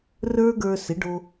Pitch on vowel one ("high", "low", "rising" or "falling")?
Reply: high